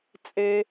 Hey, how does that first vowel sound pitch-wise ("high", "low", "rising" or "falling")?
low